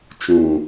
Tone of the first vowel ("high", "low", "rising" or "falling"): low